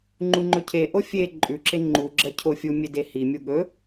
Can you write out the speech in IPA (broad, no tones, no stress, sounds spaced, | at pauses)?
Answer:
ŋ͡ǃ u ŋ͡ǃ ɵ cʰ e ʔ o fʲ e ǃʼ ʉ ǁ e ŋ͡ǃ u ɡ͡ǁ ɐ cʰ o fʲ u mʲ e d e h i mʲ u ɠ ɵ